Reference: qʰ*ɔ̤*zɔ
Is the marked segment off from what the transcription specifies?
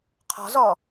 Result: no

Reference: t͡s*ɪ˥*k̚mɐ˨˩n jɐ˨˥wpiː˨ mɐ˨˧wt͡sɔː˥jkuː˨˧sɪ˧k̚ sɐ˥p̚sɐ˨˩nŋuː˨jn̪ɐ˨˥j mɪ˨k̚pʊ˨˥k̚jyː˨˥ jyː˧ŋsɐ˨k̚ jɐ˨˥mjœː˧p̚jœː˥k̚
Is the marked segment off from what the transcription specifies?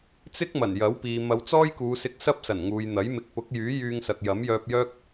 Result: no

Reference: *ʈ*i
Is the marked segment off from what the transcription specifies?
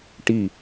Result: no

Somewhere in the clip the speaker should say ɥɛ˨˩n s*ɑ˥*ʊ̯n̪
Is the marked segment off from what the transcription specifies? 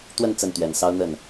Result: no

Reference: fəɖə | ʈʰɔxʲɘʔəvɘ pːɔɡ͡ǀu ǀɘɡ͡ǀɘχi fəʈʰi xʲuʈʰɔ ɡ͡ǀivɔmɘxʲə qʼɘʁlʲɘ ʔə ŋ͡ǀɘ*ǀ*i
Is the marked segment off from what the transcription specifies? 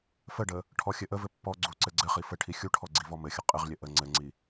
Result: yes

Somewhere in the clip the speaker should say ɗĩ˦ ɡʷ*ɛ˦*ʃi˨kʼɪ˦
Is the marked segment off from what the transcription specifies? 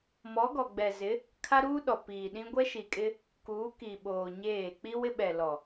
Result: no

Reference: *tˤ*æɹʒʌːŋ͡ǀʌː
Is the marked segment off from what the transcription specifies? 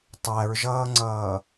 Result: no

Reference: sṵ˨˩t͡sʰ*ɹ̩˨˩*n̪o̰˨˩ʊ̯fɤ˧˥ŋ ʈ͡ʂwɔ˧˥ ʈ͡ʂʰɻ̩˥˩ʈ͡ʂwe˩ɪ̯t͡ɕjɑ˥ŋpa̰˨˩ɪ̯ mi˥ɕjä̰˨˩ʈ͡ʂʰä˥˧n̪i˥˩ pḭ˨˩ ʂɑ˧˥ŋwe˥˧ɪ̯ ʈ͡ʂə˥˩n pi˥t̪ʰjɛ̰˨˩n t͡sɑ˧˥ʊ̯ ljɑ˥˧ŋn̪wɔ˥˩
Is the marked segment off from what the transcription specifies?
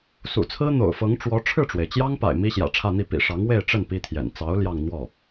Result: yes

